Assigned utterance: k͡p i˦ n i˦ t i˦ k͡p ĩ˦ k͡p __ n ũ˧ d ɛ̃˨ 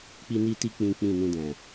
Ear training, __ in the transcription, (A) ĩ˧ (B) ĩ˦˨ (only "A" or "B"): B